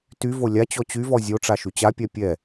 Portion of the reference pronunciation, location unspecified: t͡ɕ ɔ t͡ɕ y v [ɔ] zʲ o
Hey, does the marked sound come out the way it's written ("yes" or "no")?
yes